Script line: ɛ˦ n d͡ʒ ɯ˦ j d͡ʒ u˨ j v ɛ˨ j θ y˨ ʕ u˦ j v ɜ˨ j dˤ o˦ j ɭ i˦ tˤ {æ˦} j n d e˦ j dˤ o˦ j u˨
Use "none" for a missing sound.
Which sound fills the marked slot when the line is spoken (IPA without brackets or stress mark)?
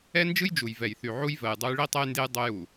ɛ˦